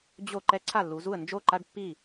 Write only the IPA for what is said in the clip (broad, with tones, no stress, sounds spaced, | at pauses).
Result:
d͡ʑ o˥˩ ǃ ɛ˦ ǀʰ a˥˩ lː u˩˧ z u˥˩ ə̯ n d͡ʒ o˥˩ ǃ a˦ ɖ pː i˥˩